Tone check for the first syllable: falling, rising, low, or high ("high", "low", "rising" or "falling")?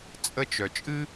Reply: high